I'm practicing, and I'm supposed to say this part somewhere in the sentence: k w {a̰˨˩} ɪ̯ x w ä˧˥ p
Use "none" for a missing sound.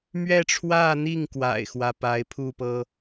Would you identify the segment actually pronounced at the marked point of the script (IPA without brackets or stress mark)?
a̰˨˩